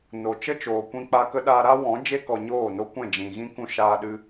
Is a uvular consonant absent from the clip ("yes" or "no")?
yes